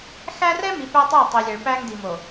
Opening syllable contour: high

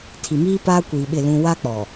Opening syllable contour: low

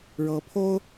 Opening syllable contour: rising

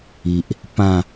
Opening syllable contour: low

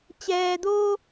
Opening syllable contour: low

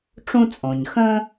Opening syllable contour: high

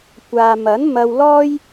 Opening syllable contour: low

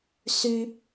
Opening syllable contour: high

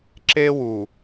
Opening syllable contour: high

